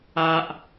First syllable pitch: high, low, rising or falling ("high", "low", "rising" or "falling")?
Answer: low